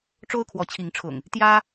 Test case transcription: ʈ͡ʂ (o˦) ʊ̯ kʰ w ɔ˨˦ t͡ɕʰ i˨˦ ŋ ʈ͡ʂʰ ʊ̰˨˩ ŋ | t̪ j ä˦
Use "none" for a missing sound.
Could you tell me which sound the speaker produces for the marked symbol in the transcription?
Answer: o˦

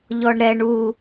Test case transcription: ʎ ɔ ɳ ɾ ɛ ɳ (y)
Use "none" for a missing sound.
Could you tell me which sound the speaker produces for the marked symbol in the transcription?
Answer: u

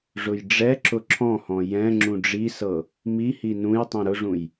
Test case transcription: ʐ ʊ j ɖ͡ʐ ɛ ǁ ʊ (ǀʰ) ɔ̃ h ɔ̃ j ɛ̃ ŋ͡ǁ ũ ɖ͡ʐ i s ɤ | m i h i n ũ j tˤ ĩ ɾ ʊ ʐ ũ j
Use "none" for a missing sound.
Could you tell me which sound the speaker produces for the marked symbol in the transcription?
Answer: ǁʰ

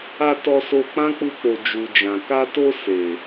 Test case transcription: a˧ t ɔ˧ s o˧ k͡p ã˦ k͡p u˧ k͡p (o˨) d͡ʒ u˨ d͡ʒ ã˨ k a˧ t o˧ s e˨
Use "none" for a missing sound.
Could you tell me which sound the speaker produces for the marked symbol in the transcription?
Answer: o˨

